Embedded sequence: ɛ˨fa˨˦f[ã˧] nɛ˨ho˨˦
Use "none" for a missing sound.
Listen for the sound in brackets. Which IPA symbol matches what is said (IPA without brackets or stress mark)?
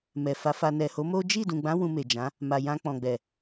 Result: a˧